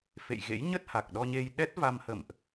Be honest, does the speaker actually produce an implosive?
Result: yes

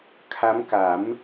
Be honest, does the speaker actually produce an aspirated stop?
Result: yes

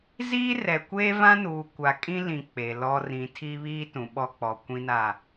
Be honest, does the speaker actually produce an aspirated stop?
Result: yes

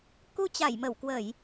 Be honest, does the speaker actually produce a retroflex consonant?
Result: no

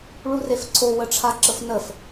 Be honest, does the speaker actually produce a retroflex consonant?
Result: yes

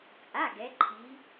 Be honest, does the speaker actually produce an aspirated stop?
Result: yes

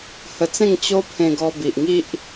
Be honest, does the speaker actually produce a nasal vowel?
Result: yes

